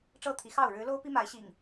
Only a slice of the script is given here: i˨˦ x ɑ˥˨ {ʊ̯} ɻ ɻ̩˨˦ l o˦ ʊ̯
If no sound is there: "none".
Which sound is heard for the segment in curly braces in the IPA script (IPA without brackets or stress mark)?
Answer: ʊ̯